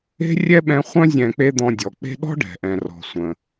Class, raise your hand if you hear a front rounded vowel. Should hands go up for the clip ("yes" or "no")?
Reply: yes